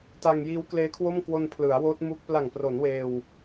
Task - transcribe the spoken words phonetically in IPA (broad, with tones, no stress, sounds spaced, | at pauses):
t a˧ ŋ j iː˦˥ w k l eː˦˥ kʰ w o˥˩ m k w o˧ n pʰ l ɯ˩˦ a̯ w oː˦˥ t̚ m u˦˥ k̚ p l a˨˩ ŋ p r o˩˦ n w eː˧ w